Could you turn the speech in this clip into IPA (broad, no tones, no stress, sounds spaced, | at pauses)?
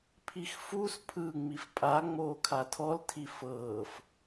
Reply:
pʰ i x f u s pʰ ɯ ŋ͡m i f pʼ a ŋ͡m oː kʰ a tʰ ɔ l tʰ i f ɤː f